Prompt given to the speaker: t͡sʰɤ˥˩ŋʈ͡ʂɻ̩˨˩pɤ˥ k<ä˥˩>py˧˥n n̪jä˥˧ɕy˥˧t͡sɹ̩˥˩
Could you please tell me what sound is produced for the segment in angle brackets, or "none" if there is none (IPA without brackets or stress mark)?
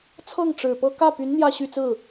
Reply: ä˥˩